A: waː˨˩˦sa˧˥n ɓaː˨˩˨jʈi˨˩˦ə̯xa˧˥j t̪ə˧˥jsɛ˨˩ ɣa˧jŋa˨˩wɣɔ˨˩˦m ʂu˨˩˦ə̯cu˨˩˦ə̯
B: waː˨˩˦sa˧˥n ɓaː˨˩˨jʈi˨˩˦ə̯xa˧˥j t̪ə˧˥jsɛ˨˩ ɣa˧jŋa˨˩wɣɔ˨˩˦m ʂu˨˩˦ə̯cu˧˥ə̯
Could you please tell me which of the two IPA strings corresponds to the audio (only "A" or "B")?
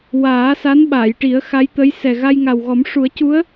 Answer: B